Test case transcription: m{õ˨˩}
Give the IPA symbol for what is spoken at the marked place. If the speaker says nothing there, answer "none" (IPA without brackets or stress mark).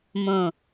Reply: õ˨˩